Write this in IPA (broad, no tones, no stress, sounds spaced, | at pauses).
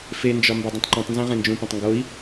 f e n d͡ʒ ɒ m b ɒ dˤ ĩ tˤ ǃ õ tˤ n z ẽ ʁ ẽ n d͡ʒ ũ p õ tˤ ŋ ɡ o i̯